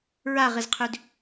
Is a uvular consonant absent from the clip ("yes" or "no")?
no